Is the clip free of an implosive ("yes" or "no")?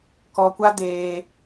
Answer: yes